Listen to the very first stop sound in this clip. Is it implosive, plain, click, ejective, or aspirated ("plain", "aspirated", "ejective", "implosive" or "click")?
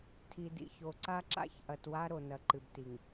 aspirated